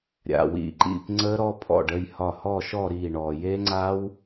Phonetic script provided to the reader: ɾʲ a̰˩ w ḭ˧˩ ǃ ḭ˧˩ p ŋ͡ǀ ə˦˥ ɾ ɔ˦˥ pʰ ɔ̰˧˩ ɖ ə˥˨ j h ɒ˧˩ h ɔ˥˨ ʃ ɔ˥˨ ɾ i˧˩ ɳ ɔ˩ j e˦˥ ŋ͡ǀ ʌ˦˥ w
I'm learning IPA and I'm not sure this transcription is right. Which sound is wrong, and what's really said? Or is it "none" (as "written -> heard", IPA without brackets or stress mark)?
ʌ˦˥ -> a˦˥